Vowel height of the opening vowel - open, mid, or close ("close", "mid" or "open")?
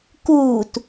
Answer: close